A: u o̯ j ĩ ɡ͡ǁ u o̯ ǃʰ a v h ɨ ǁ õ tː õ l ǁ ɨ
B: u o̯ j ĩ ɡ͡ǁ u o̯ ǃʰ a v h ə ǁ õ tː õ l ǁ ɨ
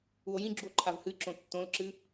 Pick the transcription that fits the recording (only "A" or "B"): A